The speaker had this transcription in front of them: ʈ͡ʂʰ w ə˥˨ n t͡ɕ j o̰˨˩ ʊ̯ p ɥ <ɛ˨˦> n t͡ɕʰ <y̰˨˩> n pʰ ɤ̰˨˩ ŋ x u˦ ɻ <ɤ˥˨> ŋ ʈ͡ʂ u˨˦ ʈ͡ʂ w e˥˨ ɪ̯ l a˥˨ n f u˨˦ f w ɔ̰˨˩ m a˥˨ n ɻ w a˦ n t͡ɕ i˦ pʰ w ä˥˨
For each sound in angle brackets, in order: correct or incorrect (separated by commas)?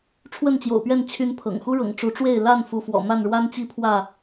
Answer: incorrect, incorrect, incorrect